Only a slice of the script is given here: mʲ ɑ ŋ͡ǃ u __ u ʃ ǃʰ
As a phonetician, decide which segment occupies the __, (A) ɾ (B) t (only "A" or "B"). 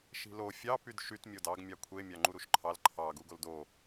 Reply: A